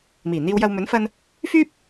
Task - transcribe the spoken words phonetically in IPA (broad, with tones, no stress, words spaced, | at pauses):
miː˨˩ n̪iː˧wjɐ˧w mɵ˨˥nfɐ˧n | fyː˥p̚